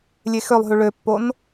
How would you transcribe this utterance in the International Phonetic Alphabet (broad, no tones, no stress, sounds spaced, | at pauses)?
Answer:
lʲ e x ø lˠ ɦ y ɭ ø pː o n